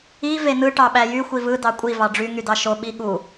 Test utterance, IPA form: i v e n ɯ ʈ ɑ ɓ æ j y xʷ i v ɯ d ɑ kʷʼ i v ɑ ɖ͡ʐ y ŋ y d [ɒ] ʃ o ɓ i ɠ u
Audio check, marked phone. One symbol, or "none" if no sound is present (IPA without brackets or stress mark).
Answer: ɑ